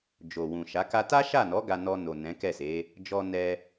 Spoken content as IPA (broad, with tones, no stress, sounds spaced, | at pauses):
d͡ʒ o˨ w ũ˨ ʃ a˨˦ k a˧ t a˦ ʃ a˦˨ n ɔ˨˦ ɡ a˧ n ɔ˧ n o˨ n ɛ̃˨˦ k ɛ˦˨ s e˨˦ | d͡ʒ ɔ˧ n ɛ˧